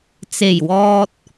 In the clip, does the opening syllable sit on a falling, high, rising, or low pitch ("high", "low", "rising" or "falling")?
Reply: low